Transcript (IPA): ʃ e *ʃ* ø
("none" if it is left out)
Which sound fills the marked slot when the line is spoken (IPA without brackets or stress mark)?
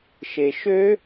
ʃ